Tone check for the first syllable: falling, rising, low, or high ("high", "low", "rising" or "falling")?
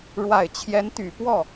low